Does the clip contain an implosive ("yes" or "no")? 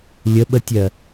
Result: yes